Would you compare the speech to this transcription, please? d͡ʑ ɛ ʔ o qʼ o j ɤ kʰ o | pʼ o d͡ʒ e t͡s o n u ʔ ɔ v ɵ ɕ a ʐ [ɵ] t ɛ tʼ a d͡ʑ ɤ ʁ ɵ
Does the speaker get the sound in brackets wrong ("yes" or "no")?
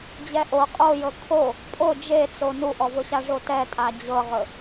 yes